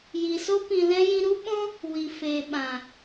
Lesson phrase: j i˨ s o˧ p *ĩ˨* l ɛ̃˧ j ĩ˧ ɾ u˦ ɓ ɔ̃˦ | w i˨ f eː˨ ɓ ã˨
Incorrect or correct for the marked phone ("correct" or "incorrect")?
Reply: correct